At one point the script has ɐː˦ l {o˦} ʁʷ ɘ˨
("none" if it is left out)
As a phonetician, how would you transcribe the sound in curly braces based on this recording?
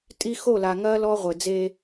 ɔ˦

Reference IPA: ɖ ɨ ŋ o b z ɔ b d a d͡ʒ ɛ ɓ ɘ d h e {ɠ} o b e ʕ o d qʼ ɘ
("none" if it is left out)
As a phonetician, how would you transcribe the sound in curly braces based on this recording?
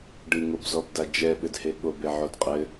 ɠ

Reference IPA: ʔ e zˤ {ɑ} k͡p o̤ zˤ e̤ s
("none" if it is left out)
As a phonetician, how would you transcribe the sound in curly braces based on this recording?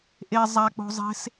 a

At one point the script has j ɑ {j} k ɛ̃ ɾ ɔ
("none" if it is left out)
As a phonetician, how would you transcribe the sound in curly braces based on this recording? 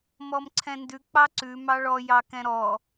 none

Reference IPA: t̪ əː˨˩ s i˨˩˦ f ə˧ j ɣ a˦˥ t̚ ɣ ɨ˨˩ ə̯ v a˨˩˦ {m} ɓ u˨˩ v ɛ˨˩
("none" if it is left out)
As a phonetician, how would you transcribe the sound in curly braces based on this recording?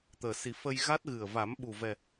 m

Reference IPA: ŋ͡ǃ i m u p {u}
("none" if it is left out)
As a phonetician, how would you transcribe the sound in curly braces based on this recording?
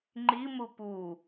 u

